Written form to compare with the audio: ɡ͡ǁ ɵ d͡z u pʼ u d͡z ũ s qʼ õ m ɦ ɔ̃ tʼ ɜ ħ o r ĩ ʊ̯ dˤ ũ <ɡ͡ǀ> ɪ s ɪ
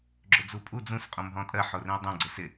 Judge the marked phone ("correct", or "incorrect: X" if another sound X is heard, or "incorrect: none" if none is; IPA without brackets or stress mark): correct